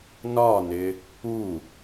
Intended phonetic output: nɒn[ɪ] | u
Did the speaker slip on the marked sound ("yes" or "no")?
no